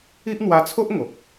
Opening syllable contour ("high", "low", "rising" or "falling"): high